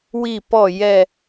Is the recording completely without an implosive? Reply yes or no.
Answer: yes